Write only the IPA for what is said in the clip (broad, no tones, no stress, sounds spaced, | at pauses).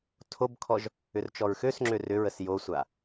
tʰ o b kʰ ɔ ʒ | ʏ r t͡ʃ ɔ ɹ x ø s ŋ͡ǁ ø r ʏ ɹ ə s j o sʷ a